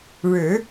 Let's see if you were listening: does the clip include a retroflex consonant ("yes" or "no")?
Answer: yes